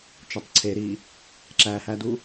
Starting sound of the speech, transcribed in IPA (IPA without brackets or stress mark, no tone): t͡ʃ